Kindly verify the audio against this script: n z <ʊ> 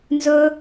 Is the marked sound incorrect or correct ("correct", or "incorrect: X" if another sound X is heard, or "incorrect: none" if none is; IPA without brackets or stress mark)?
correct